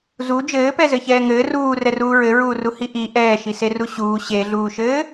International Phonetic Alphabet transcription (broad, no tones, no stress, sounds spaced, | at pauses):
z u d͡ʒ ɘː p ɛ z ɘ ç ɛː ŋ ɘː r uː r ɛ r uː ɹ ɘ ɹ uː r u h i ʔ i ʔ ɛː ʃ i s e r u ɕ uː ɕ e ɮ uː ʃ ɘː